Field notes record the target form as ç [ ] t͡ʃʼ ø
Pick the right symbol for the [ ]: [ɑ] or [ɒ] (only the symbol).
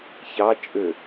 ɑ